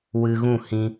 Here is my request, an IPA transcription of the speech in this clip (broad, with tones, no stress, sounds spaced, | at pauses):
w ɨ˧ ɣ ũ˦˨ h ĩ˧